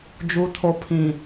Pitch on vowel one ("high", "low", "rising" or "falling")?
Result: low